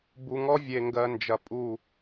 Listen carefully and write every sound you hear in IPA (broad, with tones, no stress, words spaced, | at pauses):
bu˨ŋɔ˦ vʲe˨ŋɡɜ˨nd͡ʒɐ˨ pʼu˦˨